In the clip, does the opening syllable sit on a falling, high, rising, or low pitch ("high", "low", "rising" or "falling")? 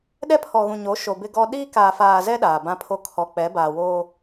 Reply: high